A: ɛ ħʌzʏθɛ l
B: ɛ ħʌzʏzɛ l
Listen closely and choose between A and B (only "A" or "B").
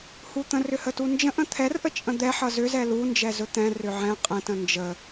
B